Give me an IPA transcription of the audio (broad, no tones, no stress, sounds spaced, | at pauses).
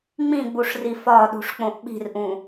ŋ͡m ĩ ɡ͡b u ʂ r i f ɒ ɗ ṳ ʂ k͡p õ ʔ ɓ i̤ r ʔ ũ